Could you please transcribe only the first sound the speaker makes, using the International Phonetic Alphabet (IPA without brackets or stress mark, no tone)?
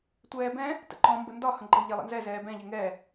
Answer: tʷ